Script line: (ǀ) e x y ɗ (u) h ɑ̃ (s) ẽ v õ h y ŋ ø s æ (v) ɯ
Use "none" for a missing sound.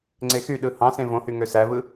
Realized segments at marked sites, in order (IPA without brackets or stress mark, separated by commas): ŋ͡ǀ, ɯ, s, v